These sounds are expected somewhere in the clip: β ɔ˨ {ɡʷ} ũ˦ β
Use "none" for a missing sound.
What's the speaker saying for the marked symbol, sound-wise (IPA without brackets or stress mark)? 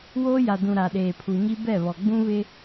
ɡ͡b